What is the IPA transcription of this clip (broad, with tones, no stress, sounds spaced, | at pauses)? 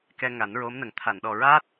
k ɛ˧ ŋ a˨˩˦ n ɹ o˧˥ m n ə˨˩˦ ŋ t̪ʰ a˨˩˨ n ɗ ɔ˨˩ ɹ aː˦˥ t̚